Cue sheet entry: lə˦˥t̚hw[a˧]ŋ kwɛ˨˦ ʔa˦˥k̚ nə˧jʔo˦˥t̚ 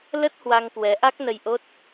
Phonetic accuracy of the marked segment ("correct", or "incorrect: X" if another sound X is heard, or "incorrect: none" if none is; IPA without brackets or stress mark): correct